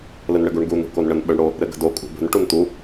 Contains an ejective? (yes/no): yes